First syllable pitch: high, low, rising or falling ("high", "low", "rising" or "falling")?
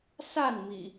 falling